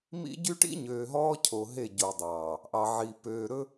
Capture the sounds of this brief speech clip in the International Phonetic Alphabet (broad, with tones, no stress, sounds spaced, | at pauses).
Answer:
m ḭ˦ ɟ y˦ ʈ ḭ˦ ɲ øː˨ ɦ ɔː˦ cʰ o˨ ɦ e˦˨ ɟ o˨ dˤ ɑː˨ | ʔ ɑ˨ ʕ i˨ p øː˨ ɾ ɵ˦